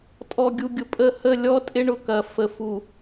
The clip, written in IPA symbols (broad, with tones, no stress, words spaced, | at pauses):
tʼɔ˨ɡʲu˨ɡʲʊ˨pʼə˦˨ hə˦˨lʲɔ˦tʼɪ˦ ɳʊ˦˨kɐ˨ fə˨fu˨